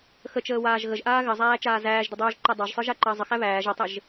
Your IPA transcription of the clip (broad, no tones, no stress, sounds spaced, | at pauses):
x ə t͡ʃ əː w aː ʒ ɣ ə ʒ ʔ aː ɣ ɘ zˤ æː t͡ʃ aː z æː ʒ d ɘ dˤ uː ʒ ǃ ɛ dˤ æ ʒ sˤ ə˞ ʒ a ǃ əː zˤ ə x æ β æː ʒ ə tˤ ɘ ʒ